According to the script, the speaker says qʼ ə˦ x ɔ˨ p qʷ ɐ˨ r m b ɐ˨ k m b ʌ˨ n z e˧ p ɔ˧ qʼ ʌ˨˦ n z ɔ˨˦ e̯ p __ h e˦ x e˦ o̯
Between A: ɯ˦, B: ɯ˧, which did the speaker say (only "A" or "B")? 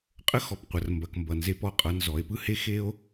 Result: A